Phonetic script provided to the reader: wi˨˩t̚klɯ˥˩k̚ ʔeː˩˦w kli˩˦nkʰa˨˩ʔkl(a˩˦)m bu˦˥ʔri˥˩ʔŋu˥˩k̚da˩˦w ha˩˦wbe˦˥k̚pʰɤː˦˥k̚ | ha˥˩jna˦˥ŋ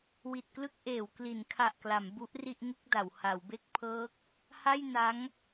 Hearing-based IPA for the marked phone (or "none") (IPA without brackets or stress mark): a˩˦